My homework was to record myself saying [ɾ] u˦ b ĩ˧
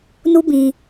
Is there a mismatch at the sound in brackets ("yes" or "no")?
yes